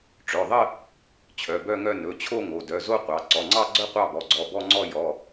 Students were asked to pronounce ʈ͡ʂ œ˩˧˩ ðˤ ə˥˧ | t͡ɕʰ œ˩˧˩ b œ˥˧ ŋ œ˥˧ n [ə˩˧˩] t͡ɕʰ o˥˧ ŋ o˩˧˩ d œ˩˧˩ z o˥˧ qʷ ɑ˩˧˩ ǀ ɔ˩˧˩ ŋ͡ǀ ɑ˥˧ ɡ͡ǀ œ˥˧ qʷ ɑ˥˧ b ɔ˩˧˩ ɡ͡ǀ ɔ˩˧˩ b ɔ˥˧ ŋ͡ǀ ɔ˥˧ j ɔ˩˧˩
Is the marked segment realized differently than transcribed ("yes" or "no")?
yes